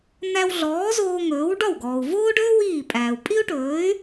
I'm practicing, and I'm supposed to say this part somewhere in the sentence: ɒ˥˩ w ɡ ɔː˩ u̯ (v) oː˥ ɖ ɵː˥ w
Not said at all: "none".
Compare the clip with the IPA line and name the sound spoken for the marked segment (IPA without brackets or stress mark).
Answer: v